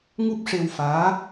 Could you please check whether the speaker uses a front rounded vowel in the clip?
no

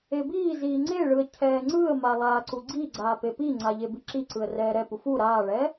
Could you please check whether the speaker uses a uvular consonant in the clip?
no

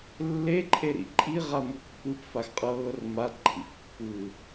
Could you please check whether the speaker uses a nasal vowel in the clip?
no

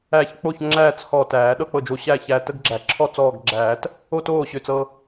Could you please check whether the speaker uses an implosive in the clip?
yes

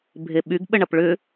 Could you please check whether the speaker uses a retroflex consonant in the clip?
yes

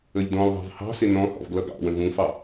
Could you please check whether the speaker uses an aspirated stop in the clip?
no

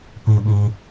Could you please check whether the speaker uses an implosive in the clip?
yes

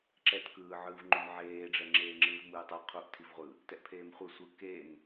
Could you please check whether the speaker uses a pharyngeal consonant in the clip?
yes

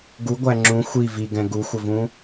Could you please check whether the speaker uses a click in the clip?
yes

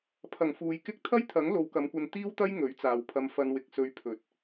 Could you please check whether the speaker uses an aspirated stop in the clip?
yes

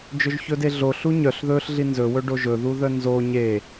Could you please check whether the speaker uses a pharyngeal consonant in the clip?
no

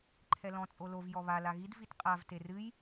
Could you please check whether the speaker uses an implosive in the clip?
no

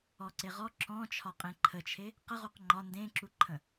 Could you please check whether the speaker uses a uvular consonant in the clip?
yes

